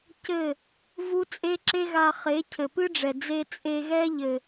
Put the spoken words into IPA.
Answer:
c ɘ˦˨ | v u˦ t͡sʼ e˦ ǁ e˦ ɣ a˧ χ e˨˦ cʰ ɘ˨ p ɨ˦ ɖ͡ʐ ɛ˨ d͡z e˧ t͡sʼ e˧ ɣ ɛ˦ ʎ ɘ˨

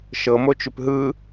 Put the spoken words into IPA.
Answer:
ʃ ɤ m o t͡ʃ ʉ p ɦ ɯ

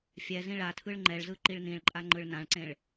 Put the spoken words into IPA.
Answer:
fʲ ɛ z ĩ ɭ a tʰ ɯ ɭ ŋ͡ǃ ɛ ɭ z ɯ ǃ i ɭ n ĩ ɭ ǃʼ a ŋ͡ǃ ɯ ɭ n ã ɭ ǀ ẽ ɭ

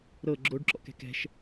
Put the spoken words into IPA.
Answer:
ɾ ɤ ɡ͡ǁ o ɖ ǁ ɔ̰ k ɛ̤ k ɛ̤ ʃ

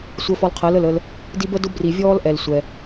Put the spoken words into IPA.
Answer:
sʷ əː˧ f ɔ˧ l qʰ əː˨˦ l ə˦˨ l ə˧ l | d i˦ b ə˦ d ʊ˦ b r i˨ vʲ ɔː˦ l ʔ ɛ˨ l sʷ ɛ˧

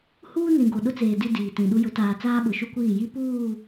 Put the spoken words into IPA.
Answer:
h uː˦ n ĩ˨ ɡ o˨ ɗ ʊ˦ t͡s eː˨ d i˦ d iː˨ t ĩ˨ ɗ u˦ j ʊ˨˦ t aː˨ t͡s aː˦ ɓ ʊ˨ ʃ u˦ kʷ iː˦˨ j i˦ p uː˦˨

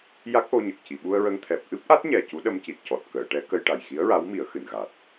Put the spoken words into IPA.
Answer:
j a˦˥ k̚ ʔ o˧ ɲ ə˨˩ k̚ c i˨˩˨ ɓ u˧ ə̯ ɹ ə˧ ŋ t̪ʰ ɛ˨˩ p̚ ʔ ɨ˦˥ p̚ ʔ a˦˥ t̚ ɲ ɛ˨˩ c u˧˥ ɗ ə˧ m c i˨˩ t̚ c ɔ˨˩ t̚ k əː˨˩˨ ʈ ɛ˧˥ k ə˧ j ʈ a˨˩ j x i˧˥ ə̯ ɹ a˧˥ w m i˨˩˦ ə̯ x ɨ˨˩˨ n ɣ a˨˩ t̚

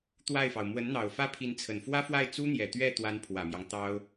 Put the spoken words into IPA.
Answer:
t̪ w a˥˩ ɪ̯ f ɑ˩ ʊ̯ m w ə˧˥ n n̪ ɑ˨˩ ʊ̯ f ä˥˩ pʰ i˧˥ n t͡sʰ ə˨˩ n f w ä˥ f w a˥˩ ɪ̯ t͡s u˥ n̪ j ɛ˨˩ t̪ ɥ ɛ˥˩ t̪ w a˧˥ n pʰ w ä˨˩ m j ɑ˦ ŋ t̪ ɑ˥ ʊ̯

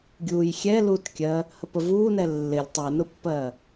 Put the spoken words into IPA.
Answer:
ɡʲ uː j xʲ ɛ l uː t kʲ ɜ | h ə p ə v uː n ɛ lː ɪ lʲ tˤ ɛ n ʊ pː ɜː

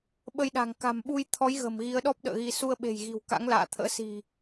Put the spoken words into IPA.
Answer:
ɓ ə˧ j ɗ a̤˨˩ ŋ k a̤˨˩ m ɓ u˧ j t̪ʰ ɔ˨˦ j ɣ ə̤˨˩ m ɣ i˨˦ ə̯ ɗ ɔ˦˥ p̚ ɗ ə̰ː˧˨ ɣ i˧ s u˧ ə̯ ɓ e̤˨˩ j ɣ i̤˨˩ w k a̰˧˥ ŋ l a̰ː˧˨ t̪ʰ ə̰ː˧˥ s i̤˨˩

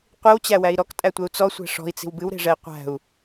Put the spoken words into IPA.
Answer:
qʷ i w t͡ɕ æ w æ i̯ ɾ ɔ k tʼ æ tʷ ɛ u̯ t͡s ɔ sʷ æ̤ ʂ ɔ̤ i̯ t͡s i̤ w b ɨ w ɾ e̤ ʐ ɛ i̯ qʷ æ̤ u̯

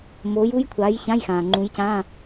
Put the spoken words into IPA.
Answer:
m oː˨˦ j u˦˥ j kʷʰ a˨˦ j ç ã˧˥˧ j x ãː˩ ŋ͡ǃ ũ˨˦ j c ãː˧˥˧

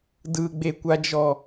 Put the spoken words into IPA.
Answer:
d ɯ ɡ͡b e kʷ a d͡ʒ ɔ

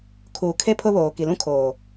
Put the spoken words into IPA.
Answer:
kʰ uː˨ kʰ e˦ pʰ ʊ˦ β oː˨ k i˨ l ũ˦ kʰ oː˨

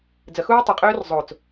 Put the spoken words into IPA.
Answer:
d͡z ə x uː tˤ ɘ qʼ øː r zˤ o t͡s

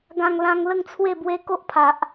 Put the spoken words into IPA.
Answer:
ɡ ã˧ ŋ l ã˧ ŋ l ə˥˧ ŋ t͡sʰ w e˥˧ b w e˦ k o˦ ʔ pʰ a˨ ʔ

